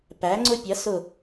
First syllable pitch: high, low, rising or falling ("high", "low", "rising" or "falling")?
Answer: rising